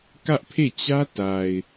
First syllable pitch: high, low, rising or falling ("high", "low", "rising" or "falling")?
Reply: high